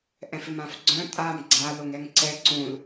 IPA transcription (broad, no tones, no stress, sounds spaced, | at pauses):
ʔ ɛ̃ f ɪ m ã f ɡ͡ǀ œ̃ tʼ a m ɡ͡ǀ a l o ŋ ɛ ŋ ǀ ɛ ǀ ũ l